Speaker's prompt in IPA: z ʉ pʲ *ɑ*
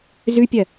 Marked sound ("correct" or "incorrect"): incorrect